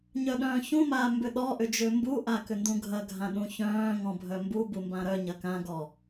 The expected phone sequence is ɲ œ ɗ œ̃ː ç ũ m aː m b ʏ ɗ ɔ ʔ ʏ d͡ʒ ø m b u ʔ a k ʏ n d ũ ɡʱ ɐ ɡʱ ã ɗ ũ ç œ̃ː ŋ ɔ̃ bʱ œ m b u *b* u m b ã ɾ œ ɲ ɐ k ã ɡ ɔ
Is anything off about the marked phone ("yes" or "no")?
no